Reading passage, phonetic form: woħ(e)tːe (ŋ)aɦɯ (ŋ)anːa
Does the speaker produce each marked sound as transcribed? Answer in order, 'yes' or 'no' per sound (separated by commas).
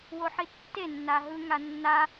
no, no, yes